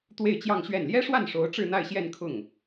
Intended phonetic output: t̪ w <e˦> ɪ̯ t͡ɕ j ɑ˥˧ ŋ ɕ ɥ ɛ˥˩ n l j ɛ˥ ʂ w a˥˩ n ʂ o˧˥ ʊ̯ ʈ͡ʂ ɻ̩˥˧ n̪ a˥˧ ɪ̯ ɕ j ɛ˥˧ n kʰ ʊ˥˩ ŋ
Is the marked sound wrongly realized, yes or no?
yes